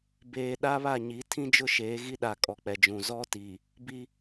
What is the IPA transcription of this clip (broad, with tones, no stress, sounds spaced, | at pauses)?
b eː˨ ɗ a˦ β a˦˨ ɲ i˨˦ tʰ ĩ˦ d͡ʒ ʊ˦ ʃ eː˨˦ ɣ i˦ ɗ a˨ kʼ ɔ˨ k͡p ɛ˨ d͡ʒ ũ˨ z ɔ˦ t iː˨ | b i˦